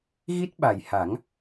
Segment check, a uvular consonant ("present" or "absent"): absent